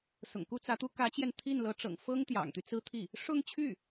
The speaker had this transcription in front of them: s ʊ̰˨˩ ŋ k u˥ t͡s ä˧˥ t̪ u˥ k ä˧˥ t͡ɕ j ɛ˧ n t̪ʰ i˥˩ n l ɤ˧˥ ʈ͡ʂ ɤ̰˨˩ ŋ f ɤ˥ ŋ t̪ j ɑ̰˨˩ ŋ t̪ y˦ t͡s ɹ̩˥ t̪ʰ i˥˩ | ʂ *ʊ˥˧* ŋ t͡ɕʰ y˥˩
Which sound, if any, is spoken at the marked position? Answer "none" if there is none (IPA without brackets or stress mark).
ʊ˥˧